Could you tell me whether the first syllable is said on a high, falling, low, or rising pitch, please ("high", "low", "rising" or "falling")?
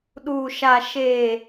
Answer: low